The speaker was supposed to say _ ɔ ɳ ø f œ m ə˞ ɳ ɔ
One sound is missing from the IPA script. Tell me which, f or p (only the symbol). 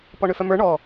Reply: p